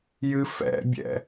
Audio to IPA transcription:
jɨfɛ̰bʲɛ̰

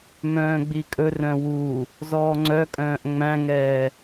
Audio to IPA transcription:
mœ̃ːɡ͡bikʼɵrœ̃ wu | zɔːŋ͡ǀœkʼœ̃ːʔ ŋ͡mæ̃ŋɛː

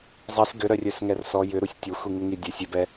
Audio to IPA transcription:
zˤis ɡʏɾœrʲœsŋɛr sɔ jʏɾusʲ tʲoxʷiŋuŋi dʲœsʲ ʏbɛ

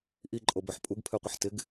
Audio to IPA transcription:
ʔiǃʼobœħ pʼuɡpʰøqʷɪħ tɪɡ

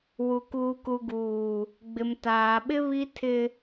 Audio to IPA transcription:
wu˨kuː˨ku˨ɡuː˨ | ɡ͡bɪ˨mtaː˨ɓɪ˦ βi˦tʰɪ˦

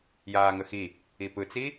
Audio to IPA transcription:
jaːŋəxi | ipɯt͡si

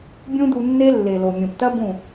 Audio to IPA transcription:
bʲũ˦du˧nːe˦ lːe˨lo˨ mʲõ˨ptɐ˦ bũ˦˨

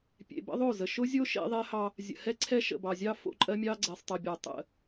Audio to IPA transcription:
pʲḛ˨bə̰˦ðˤo˦˨zə˨ ʃʊ˦zʲo˦ ʃḛ˦ðˤe˦hɑ˦ | zʲə̰˨ hɛ˦ǀʰɛ˦ ʃə̰˨bɑ˨zʲɑ˦ fo̰˦ǃʼɜ˦mʲɑ˦ ɡ͡ǀɛ˨sˤtˤe˨bʲɑ˨ tˤə̰˦˨

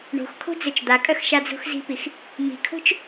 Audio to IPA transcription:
ɳo̤x kʰo̤d͡zøt͡ʃd̪akʼœx ʃad͡zo̤xzi̤pix | mi̤kʰo̤t͡ʃ

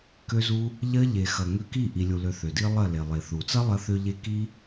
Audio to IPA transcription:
kø˦zu˦ | ʎɐ˦ ʎe˨xɐ˨ ŋø˧ki˦˨ ʔi˧lʲu˧lø˧ θø˨di˦ lˠɐ˦˨ le˨lˠe˨θu˨ t͡sɐ˦lˠɐ˧θø˧ʎe˧ ki˦

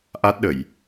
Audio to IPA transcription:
ʔa˦˥t̚ɗə˧˩˨j

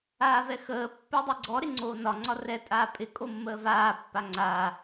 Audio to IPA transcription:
aːvɛxəː pːɪːdˤiɡ͡ǀɔ ɾɪŋ͡ǀoːnɒ ŋ͡ǀɒrɛ tʼaːpʼɪ kʼomːəːvaː pːaŋ͡ǀaː

